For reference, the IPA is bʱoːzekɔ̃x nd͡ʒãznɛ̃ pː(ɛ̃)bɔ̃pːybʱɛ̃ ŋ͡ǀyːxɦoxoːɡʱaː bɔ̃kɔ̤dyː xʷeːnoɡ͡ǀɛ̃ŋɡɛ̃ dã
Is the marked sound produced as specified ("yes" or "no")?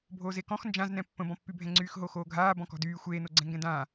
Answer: no